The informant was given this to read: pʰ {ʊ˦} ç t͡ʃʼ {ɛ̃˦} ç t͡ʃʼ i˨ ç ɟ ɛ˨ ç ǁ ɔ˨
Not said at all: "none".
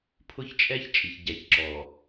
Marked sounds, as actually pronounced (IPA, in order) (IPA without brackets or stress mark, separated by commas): ʊ˦, ɛ˦